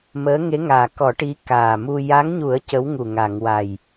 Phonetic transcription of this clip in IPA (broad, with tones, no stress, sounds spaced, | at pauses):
m əː˧˥ ŋ e˧˥ ŋ aː˨˩ k ɔ˨˩˦ ʈ i˧˥ k aː˨˩ m u˧ j a˧˥ ŋ ɲ u˨˩˦ ə̯ c ə˧˥ w ŋ u˨˩ ŋ a˨˩˨ ŋ w a˨˩ j